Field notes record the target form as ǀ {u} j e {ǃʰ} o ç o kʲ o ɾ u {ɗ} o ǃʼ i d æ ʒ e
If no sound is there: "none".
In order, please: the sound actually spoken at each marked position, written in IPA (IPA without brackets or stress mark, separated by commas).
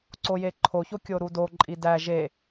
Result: o, ǃʰ, d